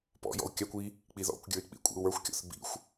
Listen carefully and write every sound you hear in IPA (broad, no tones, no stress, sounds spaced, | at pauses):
p ɔ̰ j ɔ̰ u̯ kʲ a kʷ i | k͡p i ð ɔ̰ kʷ ɡʲ ə˞ i̯ k͡p ḭ kʷʼ ḭ u̯ w ə˞ xʷ kʲ ɔ̰ θ b ḭ xʷ